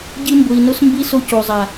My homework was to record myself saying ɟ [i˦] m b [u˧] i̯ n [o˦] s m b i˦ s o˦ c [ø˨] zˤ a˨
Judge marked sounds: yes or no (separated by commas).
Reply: yes, no, yes, no